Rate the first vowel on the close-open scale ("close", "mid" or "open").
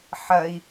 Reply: open